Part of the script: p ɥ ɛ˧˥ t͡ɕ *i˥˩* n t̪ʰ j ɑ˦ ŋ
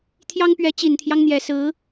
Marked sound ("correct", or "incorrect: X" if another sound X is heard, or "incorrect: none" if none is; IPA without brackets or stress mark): incorrect: i˨˩